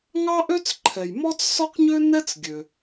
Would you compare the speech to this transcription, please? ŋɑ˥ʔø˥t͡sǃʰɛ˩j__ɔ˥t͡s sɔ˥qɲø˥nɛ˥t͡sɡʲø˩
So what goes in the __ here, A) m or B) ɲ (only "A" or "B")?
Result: A